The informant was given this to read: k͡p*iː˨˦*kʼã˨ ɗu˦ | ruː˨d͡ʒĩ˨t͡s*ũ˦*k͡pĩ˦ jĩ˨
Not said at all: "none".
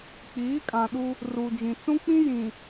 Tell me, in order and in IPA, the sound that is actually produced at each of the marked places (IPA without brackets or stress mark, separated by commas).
iː˨˦, ũ˦